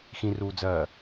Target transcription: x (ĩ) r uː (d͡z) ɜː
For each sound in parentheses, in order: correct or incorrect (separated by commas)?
correct, correct